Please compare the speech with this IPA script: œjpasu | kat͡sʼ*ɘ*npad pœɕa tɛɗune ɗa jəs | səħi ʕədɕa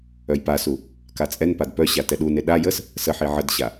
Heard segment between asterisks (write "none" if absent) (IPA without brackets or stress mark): ɛ